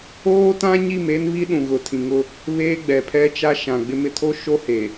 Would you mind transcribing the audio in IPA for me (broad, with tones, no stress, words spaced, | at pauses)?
oː˦tã˦ ɲi˦˨me˦nβi˦ɗũ˨ ɣʊ˨tʰĩ˨ŋʊ˦ | βeː˦ɡ͡bɛ˨pʰɛ˦t͡ʃa˦ ʃã˨ɡ͡bɪ˦mɪ˦ tʰo˦ʃo˦he˨